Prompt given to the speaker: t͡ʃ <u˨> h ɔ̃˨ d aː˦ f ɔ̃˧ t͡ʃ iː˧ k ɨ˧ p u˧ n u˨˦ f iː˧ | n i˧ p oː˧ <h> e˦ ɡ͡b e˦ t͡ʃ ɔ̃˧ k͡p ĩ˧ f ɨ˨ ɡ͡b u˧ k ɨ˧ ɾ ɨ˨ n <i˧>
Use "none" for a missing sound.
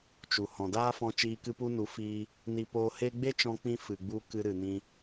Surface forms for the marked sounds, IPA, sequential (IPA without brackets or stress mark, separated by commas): u˨, h, ĩ˧